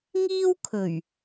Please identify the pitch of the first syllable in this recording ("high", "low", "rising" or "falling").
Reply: high